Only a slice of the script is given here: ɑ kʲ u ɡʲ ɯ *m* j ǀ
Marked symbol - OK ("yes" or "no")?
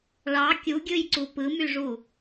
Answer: no